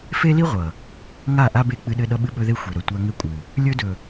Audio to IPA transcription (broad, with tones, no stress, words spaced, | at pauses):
fe˦li˦ ʁʷʌ˨ | ŋa˦˨ʔa˦ be˦˨k͡pɨ˦ɗɘ˦ ɗʌ˦ɓɨ˦ɓɵ˦ðe˦ xʷe˨ɾɵ˨ tʷa˦ ŋɘ˦kʷʼɨ˨ | lʲɵ˦dɵ˨